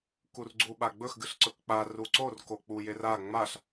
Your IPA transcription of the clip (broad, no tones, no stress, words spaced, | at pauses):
kurɡ͡ǀu ɓaɡ͡bɵx ɡɨɬǀɵkk͡pa ruǀor kok͡pujera ŋ͡maɬ